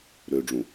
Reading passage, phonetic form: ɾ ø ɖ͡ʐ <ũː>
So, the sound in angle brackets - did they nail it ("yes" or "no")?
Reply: no